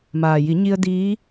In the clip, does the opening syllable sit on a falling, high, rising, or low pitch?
low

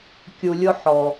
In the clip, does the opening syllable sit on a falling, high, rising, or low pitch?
low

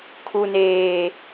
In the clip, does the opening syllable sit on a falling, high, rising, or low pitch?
low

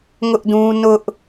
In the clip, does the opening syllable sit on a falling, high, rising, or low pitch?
high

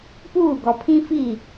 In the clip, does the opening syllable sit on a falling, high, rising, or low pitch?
falling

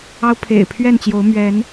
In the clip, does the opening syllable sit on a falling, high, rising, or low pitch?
high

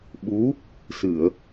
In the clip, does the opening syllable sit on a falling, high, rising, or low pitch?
rising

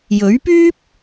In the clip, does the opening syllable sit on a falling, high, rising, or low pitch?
rising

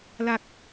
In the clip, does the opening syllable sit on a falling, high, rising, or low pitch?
low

